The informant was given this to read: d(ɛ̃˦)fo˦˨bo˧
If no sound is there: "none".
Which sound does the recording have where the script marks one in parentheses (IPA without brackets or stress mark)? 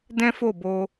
ɛ̃˦